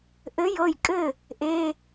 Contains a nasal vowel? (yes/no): no